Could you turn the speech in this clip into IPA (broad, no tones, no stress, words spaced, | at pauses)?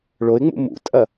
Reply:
ɭoɪ̯ŋ͡mṵ mṵtʼɐ